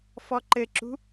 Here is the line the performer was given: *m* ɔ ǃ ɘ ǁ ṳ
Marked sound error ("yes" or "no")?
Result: yes